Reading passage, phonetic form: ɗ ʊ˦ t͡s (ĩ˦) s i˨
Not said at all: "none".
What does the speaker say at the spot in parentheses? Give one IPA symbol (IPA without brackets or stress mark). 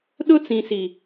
ĩ˨